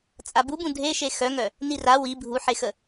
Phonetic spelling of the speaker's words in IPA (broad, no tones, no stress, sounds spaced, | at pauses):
t͡sʼ a b u b ũ dʱ e ʃ e x œ ŋ œ | n i r a w i bʱ u ħ e x ə